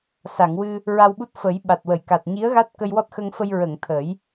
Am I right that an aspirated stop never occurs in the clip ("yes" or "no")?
no